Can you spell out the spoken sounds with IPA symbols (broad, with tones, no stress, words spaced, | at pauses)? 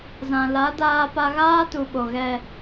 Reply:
zã˨ la˨˦daː˧ pa˧ɣaː˦tu˨ ɓo˨ɣɛ˧